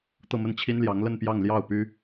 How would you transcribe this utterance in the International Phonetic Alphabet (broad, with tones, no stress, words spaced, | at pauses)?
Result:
t̪ɤ˥˧mə˥˩nt͡ɕʰi˥nljɑ˧˥ŋ lə˥˧npjɑ˥˧ŋ ljɑ˥˩ʊ̯py˥